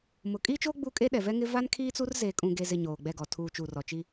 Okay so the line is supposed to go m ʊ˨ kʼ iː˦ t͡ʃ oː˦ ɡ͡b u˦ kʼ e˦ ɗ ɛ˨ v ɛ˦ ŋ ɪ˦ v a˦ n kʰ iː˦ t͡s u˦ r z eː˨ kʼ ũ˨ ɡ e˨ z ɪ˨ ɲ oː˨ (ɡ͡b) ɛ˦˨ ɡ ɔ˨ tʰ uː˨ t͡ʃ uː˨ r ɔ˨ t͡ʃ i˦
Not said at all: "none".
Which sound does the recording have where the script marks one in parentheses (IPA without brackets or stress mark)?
ɡ͡b